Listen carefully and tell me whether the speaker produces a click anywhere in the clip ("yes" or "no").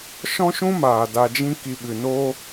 no